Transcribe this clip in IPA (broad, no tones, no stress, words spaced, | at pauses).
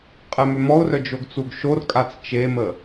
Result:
qʼɛmømɔʊ̯rœ d͡ʒoɡt͡suɡʃorkʼat͡s t͡ʃemə